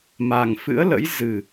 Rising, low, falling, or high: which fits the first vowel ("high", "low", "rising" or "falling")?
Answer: low